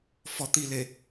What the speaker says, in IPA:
fɔ t̪ile

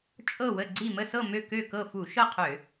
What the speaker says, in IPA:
t͡ʃʼɤ˥˨wə˥˨ɡ͡ǀi˥˨ mə˥˨sɤ˥˨ mø˥˨kø˥˨kɤ˥˨ fu˧˩˧ʃɤ˥˨ qʰø˧˩˧

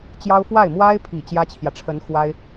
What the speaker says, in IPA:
t͡ɕjɑ˥ʊ̯ fwa˥˩ɪ̯mwa˥ɪ̯pʰi˨˩ t͡ɕjä˥t͡ɕʰjä˨ ʈ͡ʂʰə˧˥nxwa˥ɪ̯

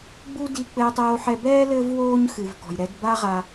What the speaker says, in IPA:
ɡ͡bu˥ di˧ k͡pɘː˧tˤoː˧ħɛ˧ bɛː˥ lɘː˥vwoː˥ɲxɨ˩v kɔ̤˩jɾɛ˧dba˥ʁa˧

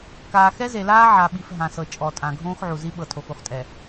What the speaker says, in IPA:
kaː˨xɛ˦ze˨laː˦ ʕa˨ɓi˨f ɦã˨sɤ˨ t͡ʃʼɔ˨tʼã˨ ɡʱõː˦xʕu˨zi˦ ɓɤ˨tʰo˨xu˨χtʼɛ˨

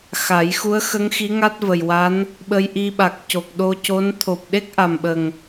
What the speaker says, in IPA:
xa˨˩˦j xu˧˥ə̯xə˧˥ŋ xi˧˥ŋa˦˥t̚və˨˩jwa˧˥n | ɓə˧jʔi˧ɓa˨˩k̚ co˨˩k̚ɗo˧ co˧˥n t̪ʰo˨˩p̚ɗe˦˥k̚ʔa˨˩mɓə˨˩ŋ

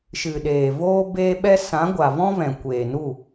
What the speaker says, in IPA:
ʃɨ˨ɗeː˨ voː˦beː˦ɓɛ˦ sã˨˦ɡʷa˨vɔ̃˦ vɛ̃˨kʷeː˨nu˦˨

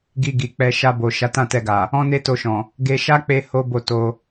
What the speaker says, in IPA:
ɡi˧ɡi˨k͡pɛ˧ ʃa˧bo˨ ʃa˨˦tã˦˨tɛ˧ɡa˨ | ɔ̃˦ne˦to˧ʃɔ̃˨ | ɡe˧ ʃa˦k͡pe˧ ho˦bo˦˨to˧

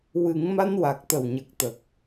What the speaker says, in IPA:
wɨ˨˩˦ŋma˧nwa˨˩k̚ t̪ə˨˩wɲə˨˩k̚t̪ə˨˩k̚

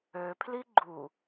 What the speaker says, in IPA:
øpʰli ɡ͡ǃu

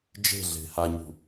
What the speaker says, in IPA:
d͡ʒe̤ ɮe̤haɲṳ

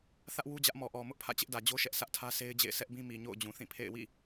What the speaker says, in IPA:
θä˦ʔ wu˦d͡ʑä˦ʔ mɔ˨ʔɔ˨ mʊ˦ʔpʰä̰˦˨ t͡ɕɪ˦ʔdä˨d͡ʑo˦ʃɛ˦ʔ sʰä˦ʔtʰä˦se˦ɪ̯d͡ʑḛ˦˨ɪ̯ sʰɛ˦ʔbĩ˦ mi˨ɲo̰˦˨ʊ̯ d͡ʑũ˨θĩ˦˨pʰḛ˦˨ɪ̯ wḭ˦˨

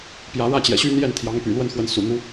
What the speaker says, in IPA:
pjä˧˥ɻä˥t͡ɕjɛ̰˨˩ɕy˥ n̪jɛ˥˩n t̪ʰjɑ˧˥ŋpy̰˨˩lwə˥˩nxwə˧˥n sṵ˨˩n̪u˧˥

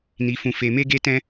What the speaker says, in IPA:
ni˧fũ˧fe˧ me˦ɡe˦ tɛ̃˦

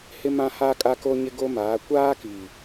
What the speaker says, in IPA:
hɪ˦ mã˦haː˦kʼa˦ko˦ ɲɪ˦ɡo˦maː˨˦ kʷaː˦ki˨

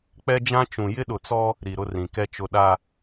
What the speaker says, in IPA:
k͡pɛ˦d͡ʒã˦ t͡ʃũ˨ jɪ˦ɗʊ˨t͡sɔ˦ | ɾi˨ɾʊ˦rĩ˨kɛ˦ t͡ʃʊ˨ɗa˨

